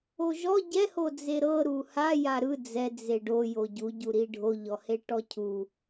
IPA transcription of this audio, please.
o ʒ ɔ ɟ ɛ h o d͡z e ɾ ɤ ɾ u h a j a ɾ ɯ d͡z ɛ d͡z e ɖ o j o ɟ u ɟ u ɾ i ɖʱ o ʎ ɔ h e ʈ ɔ cʰ u

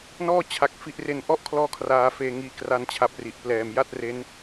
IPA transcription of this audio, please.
n ɔː˥˩ t͡ɕʰ a˨˩ k̚ f i˨˩ ʔ r e˨˩ n ʔ ɔ˦˥ ʔ kʰ l ɔː˧ kʰ r aː˧ f eː˧ ŋ iː˧ k r a˦˥ n t͡ɕʰ a˨˩ p̚ r i˨˩ ʔ p l ɛː˨˩ m j a˥˩ t̚ r e˦˥ n

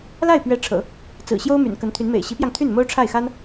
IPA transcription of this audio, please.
l a˥˩ ɪ̯ p ɥ ɛ˧˥ ʈ͡ʂʰ ɤ̰˨˩˦ | t͡s ɹ̩˨˩ ɕ j o˥ ʊ̯ m y̰˨˩ n k ə˧˥ n t̪ʰ y˧˥ n m ḛ˨˩ ɪ̯ ɕ i˧˥ p j ɑ˧ ŋ t̪ʰ y˥˩ n m o˥ ʊ̯ ʈ͡ʂʰ a˥˩ ɪ̯ x a˥ n

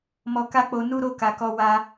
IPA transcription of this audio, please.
m ɔ˧ k a˦ k͡p o˧ n u˦ ɾ o˦ k a˧ k ɔ˦ w a˦

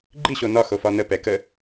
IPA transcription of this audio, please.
ɡ͡ǃ i ɕ o n ɒ x o f ɒ n ə p ɛ k ə

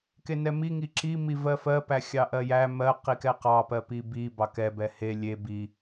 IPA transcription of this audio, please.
k e n ɛ m i ŋ i ǁ i m i v ɜ f ɜ p æ xʲ ɑ ʔ ɜ j æ m ɜ q i k ɛ q ɑ p ɜ p i b i b ɑ k ɛ b ɛ h e lʲ e b i

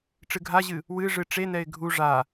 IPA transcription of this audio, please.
ʈ͡ʂ ɨ ɡʱ a ʑ ɨ | w ɨ ʐ ɨ ʈ͡ʂ e n ɛ ɪ̯ ɡʱ u ʐ a

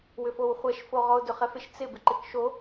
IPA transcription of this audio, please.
w ʏ f o w χʷ ɛ ʃ f o ʁ ɔ ʊ̯ d ʏ χ ɛ f ɪ ʃ t͡s ɪ b ɪ ǃ ɪ k ʃ o

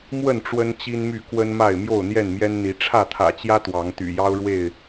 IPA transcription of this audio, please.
m w ə˥˨ n ʈ͡ʂ w ə˦ n t͡ɕ i˦ n m y˥˨ k w ə˦ n m a˥˨ ɪ̯ m j o˥˨ ʊ̯ n̪ j ɛ˥˨ n m j ɛ˦ n n̪ i˨˦ ʈ͡ʂʰ ä˥˨ t̪ʰ ä̰˨˩ t͡ɕ j ä˦ t̪ w ɑ˨˦ ŋ t̪ y̰˨˩ j ɑ˦ ʊ̯ ɻ w e˥˨ ɪ̯

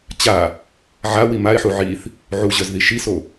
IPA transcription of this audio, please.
t͡ɕ a | ʕ a w i m a ɪ̯ ħ u ʕ i θ | ʕ u ʑ œ z ð i ʃ i s o

